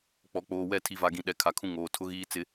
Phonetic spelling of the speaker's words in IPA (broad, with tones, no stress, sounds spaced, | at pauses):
k͡p ɔ˨ k͡p oː˨ w ɛ˦˨ tʰ i˨ v a˨ ɡ ĩ˨ ɗ ɛ˨ kʰ a˨ kʰ ũ˦ ŋ oː˨ tʰ ʊ˦ ɣ iː˦ t͡s ɪ˦